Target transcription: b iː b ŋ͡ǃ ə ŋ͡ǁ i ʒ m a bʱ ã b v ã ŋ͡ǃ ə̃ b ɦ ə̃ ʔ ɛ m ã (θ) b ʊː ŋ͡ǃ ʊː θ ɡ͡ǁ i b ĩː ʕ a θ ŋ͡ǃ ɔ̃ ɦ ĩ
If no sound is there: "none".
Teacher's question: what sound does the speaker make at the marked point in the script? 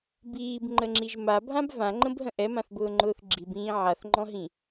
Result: θ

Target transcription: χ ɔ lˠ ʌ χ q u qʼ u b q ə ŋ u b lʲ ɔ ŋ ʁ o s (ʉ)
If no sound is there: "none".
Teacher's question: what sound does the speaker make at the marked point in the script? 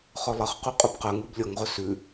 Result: ʉ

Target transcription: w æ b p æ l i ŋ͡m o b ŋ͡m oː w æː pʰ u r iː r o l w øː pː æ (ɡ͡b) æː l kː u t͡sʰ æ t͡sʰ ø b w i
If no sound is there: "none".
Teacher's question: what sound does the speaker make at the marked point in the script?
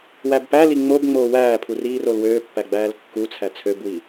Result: ɡ͡b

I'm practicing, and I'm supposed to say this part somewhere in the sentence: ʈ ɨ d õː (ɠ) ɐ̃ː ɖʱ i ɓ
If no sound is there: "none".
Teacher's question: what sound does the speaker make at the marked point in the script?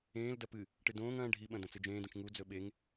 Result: ŋ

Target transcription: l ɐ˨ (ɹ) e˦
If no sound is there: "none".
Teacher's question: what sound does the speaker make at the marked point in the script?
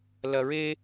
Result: ɹ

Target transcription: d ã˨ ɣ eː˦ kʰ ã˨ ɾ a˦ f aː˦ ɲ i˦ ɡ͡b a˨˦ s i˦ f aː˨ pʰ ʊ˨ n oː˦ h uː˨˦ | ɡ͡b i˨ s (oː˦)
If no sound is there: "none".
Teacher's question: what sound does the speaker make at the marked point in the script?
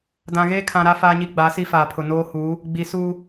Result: uː˦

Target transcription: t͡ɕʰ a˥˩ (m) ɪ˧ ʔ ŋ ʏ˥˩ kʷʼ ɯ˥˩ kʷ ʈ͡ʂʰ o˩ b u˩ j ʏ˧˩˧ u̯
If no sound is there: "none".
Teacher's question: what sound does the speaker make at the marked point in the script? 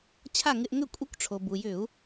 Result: ŋ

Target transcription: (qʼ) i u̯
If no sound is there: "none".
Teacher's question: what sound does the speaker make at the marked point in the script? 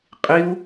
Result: qʼ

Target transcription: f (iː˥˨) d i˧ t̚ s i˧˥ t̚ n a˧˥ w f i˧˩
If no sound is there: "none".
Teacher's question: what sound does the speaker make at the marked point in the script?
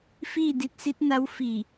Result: iː˥˨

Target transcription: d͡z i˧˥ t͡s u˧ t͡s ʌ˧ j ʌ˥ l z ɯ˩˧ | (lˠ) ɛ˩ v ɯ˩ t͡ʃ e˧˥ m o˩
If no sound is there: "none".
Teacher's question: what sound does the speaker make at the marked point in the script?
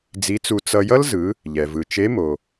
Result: ʎ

